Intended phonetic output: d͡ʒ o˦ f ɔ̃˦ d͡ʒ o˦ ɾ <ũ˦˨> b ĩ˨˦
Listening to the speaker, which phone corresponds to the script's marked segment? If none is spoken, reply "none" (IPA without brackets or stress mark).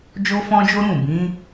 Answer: ũ˦˨